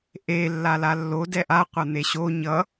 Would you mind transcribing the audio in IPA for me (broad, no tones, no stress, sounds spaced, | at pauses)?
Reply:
ʔ e lː a l a lː o d ɛ ʔ a qʷ a n̪ e ɕ o ɲ ʌ